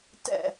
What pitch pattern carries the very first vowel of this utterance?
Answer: falling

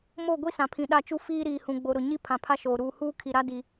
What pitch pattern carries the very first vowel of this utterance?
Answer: falling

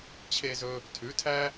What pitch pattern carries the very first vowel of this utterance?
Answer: high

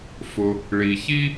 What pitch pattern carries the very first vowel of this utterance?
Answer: low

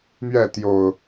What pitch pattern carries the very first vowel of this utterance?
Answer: falling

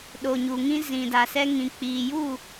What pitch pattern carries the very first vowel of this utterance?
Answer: low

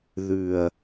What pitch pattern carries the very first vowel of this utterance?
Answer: low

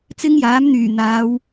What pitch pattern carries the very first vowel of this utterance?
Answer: high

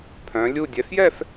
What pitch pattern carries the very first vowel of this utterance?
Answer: rising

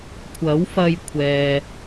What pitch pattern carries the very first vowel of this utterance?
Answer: rising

